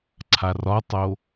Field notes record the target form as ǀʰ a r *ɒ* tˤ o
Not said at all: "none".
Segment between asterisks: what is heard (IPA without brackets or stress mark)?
ɒ